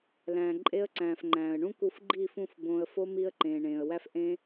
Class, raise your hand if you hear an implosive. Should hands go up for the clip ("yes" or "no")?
no